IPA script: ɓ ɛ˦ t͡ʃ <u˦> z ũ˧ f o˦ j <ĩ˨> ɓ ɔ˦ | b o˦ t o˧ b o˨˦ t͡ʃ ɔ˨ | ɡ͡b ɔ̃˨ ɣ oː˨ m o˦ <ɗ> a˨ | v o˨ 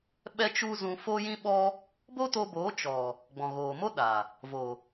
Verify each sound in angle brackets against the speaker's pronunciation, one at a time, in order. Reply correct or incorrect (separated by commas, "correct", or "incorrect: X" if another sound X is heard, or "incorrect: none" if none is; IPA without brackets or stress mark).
correct, incorrect: ĩ˦, correct